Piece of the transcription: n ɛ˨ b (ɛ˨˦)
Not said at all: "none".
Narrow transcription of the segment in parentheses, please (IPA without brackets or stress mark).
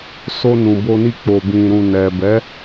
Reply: ɛ˨˦